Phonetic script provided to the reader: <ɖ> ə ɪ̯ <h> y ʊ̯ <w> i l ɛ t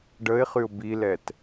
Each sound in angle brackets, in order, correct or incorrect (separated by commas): correct, incorrect, incorrect